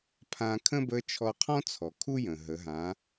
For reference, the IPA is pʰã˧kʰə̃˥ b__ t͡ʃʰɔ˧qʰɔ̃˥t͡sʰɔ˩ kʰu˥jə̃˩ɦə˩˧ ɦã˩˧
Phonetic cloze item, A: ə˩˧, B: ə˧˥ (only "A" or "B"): B